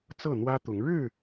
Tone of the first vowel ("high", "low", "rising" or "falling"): falling